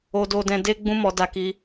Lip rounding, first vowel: rounded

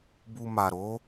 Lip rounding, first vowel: rounded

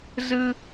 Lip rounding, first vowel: unrounded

